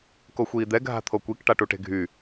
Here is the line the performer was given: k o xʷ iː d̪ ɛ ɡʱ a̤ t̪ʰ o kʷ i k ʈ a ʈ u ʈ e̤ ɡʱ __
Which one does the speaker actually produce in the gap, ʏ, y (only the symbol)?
y